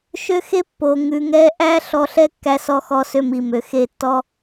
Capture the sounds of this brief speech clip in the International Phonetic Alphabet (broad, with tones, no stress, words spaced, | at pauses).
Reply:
ʃø˦xe˦ pːo˨ ŋʉ˨ŋɛ˦ ʔæ˦ ɬɔ˧ɬɛ˦ kːæ˧sɔ˧ xɔ˧sø˧mi˨ mø˨xe˦˨tːɔ˦